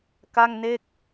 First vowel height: low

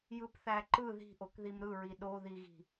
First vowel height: high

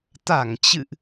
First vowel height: low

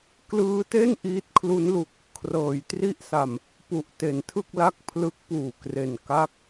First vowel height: high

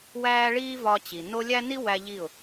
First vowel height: low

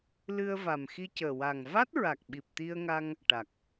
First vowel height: high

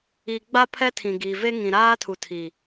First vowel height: high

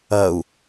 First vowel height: low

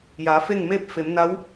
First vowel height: low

